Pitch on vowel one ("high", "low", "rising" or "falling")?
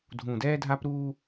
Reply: low